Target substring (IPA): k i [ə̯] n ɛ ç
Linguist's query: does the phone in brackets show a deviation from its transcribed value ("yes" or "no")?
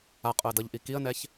no